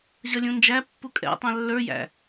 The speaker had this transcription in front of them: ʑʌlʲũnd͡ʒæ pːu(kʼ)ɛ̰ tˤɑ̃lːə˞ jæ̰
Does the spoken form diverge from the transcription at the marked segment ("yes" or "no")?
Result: no